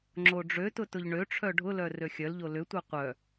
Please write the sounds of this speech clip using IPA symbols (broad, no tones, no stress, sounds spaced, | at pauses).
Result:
ŋ͡ǁ o ɖ͡ʐ ø t ʊ t ʊ ʎ ɳ ø ʈ͡ʂʰ œ ɖʱ ʊ l œ r ø xʲ œ l ʎ o l ʏ tʷ œ qʷ œ